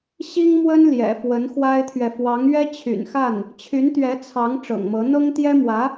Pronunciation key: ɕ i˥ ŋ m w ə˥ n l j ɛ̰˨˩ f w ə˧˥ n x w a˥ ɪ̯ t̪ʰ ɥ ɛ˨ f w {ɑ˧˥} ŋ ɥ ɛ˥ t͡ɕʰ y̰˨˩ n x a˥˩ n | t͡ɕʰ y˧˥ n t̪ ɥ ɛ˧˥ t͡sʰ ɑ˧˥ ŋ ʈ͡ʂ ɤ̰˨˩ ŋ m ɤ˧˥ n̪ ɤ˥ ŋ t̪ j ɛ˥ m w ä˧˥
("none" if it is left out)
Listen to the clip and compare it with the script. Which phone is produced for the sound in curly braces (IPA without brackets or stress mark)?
ɑ˧˥